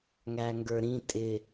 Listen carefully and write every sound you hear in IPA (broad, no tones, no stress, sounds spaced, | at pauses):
ŋ æ ŋ ɡ ə˞ ɾ ĩ tʼ ɪ